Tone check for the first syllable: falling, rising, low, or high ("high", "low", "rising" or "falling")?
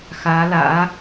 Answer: rising